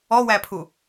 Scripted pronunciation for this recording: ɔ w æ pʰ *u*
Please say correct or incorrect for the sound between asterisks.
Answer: correct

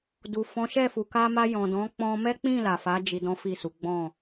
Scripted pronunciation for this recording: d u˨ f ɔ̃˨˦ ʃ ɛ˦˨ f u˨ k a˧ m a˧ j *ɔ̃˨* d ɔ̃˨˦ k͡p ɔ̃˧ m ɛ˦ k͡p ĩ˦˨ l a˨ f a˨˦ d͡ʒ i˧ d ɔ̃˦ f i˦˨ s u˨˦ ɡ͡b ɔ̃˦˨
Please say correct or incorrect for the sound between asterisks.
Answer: correct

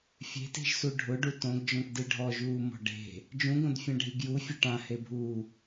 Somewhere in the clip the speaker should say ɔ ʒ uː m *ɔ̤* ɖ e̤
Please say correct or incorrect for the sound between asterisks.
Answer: correct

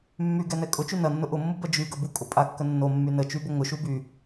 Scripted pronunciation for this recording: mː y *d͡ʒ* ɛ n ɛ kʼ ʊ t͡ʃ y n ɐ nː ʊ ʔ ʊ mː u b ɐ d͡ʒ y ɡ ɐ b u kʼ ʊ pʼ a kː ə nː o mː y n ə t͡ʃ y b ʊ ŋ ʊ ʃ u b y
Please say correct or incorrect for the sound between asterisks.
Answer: incorrect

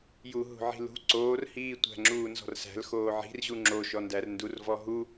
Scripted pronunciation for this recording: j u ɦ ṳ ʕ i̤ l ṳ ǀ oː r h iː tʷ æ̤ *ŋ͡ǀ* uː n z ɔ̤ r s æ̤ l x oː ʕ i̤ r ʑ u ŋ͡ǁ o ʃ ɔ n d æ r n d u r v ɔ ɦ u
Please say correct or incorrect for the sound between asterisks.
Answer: incorrect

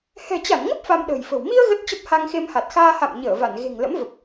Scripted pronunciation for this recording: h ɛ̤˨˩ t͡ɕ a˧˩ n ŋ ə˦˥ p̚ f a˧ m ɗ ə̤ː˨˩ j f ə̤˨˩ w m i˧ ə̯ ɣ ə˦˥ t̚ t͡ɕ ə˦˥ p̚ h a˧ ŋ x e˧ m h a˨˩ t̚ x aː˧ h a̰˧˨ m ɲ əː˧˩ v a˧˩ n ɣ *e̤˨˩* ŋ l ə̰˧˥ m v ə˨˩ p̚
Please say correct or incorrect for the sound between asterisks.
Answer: correct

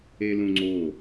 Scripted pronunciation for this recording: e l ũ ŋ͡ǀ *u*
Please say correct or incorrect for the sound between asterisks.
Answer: incorrect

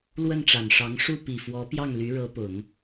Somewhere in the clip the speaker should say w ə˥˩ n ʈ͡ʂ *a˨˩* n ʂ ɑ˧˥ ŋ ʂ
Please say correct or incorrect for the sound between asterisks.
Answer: correct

